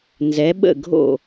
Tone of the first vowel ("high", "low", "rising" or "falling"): rising